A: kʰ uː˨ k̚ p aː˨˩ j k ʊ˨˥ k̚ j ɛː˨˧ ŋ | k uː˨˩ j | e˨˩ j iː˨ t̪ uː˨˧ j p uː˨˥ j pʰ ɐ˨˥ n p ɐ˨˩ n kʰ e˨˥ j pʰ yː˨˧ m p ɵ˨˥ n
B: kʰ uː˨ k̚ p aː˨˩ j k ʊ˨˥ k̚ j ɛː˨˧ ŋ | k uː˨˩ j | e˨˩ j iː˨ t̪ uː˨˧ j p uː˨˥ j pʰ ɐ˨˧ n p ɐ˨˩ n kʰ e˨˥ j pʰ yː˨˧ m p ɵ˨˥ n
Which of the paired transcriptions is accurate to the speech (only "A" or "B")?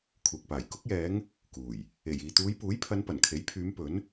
B